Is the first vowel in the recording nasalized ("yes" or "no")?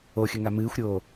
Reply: no